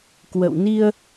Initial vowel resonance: oral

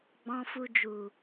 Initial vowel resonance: nasal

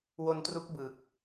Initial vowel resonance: oral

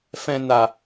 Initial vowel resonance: nasal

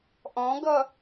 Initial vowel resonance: nasal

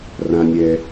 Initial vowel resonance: nasal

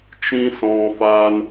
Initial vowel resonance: nasal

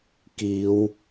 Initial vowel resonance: oral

